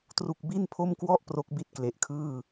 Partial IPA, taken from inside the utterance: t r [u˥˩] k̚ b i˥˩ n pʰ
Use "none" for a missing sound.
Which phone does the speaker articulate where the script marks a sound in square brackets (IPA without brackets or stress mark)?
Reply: u˥˩